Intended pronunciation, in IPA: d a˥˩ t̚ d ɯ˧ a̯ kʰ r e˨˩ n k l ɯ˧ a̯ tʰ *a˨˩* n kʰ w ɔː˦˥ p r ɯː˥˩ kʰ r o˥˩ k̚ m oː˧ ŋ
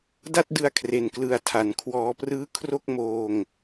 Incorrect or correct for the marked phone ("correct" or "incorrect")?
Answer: correct